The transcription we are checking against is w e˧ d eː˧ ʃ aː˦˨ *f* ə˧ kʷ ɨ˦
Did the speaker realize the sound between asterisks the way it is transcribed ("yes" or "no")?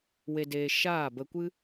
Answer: no